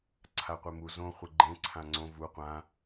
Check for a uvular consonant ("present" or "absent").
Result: present